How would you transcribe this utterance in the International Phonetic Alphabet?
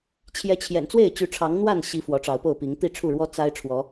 t͡ɕʰ j ɛ˨˦ t͡ɕʰ j ɛ̰˨˩ n t͡s w e˥˨ ɪ̯ t͡ɕ y˨˦ ʈ͡ʂʰ ɑ˨˦ ŋ n̪ w a˥˨ n ɕ i˨˦ f w ɔ˨˦ ʈ͡ʂ ɑ˨˦ ʊ̯ p o˥˨ ʊ̯ p i˨˦ ŋ t̪ i˥˨ ʈ͡ʂʰ u˥˨ ɻ w ɔ˦ t͡s a˦ ɪ̯ ʈ͡ʂʰ w ɔ˨˦

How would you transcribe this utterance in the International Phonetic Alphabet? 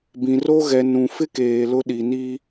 b ĩ˨ r o˦ ɣ ɛ˨ n ũ˨ f ɪ˦ k eː˨ l ʊ˦ ɗ i˨ n i˦

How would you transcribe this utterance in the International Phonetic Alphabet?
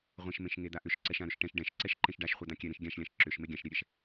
ʁʷ ɛ̃ ʃ m ẽ ʃ ŋ e d̪ a ʔ ʏ ʃ ǀ ɛ ʃ ã ɾ ʏ ʃ ʈ ɛ̃ ʃ ɖ ɛ̃ ʃ ǀ ɛ ʃ ǃ ẽ ʃ ɖ a ʃ χʷ ɛ d̪ ã kʲ ɛ ɾ ẽ ʃ ɡʲ ã ʃ lʲ ã ʃ ǁ ʏ ʃ m e ɡʲ ã ʃ ɾʲ ɛ ɾʲ ɛ ʃ

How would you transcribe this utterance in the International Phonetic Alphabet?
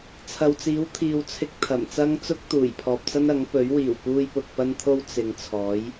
t͡sʰ ɐ˨ w t͡s iː˨˥ w t̪ʰ iː˨ w t͡sʰ ɪ˧ k̚ t̪ʰ ɐ˨˩ m t͡s ɐ˥ ŋ t͡s ʊ˥ k̚ t̪ uː˨˩ j pʰ ɔː˨ p̚ t͡s ɐ˥ n ɐ˨˥ ŋ p ɵ˨˥ ɥ w iː˨˩ w p uː˧ j p ʊ˧ k̚ p ɐ˥ n t̪ʰ o˥ w t͡s ɪ˨˧ ŋ t͡sʰ ɔː˨˥ j

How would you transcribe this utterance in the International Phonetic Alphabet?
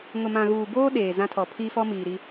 ŋ ʊ˨ m ã˨ ɣ uː˨ b oː˦ ɗ eː˨ z ã˦ tʰ ɔ˨ pʰ iː˦ f ɔ˦ m iː˨ ɾ i˦

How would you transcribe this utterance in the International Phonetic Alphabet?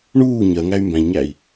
ɳ uː ɲ ɜ ŋ æ y̯ m b æ̃ ʎ ɲ æ i̯

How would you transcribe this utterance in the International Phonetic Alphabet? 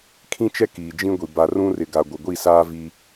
kʰ ĩ˦ t͡ʃ ɛ˦ k iː˨ d͡ʒ ĩ˦ ɡʷ i˨ b a˨ r ũ˦ r ɪ˨ ɡ a˨ ɡʷ ɪ˨ ɡʷ i˦˨ s aː˦ v i˦

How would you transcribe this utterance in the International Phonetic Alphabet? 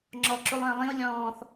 ŋ͡ǁ ɔ ǁ u lˠ ə̃ː lˠ ĩ u̯ lʲ ɔ̃ː θ

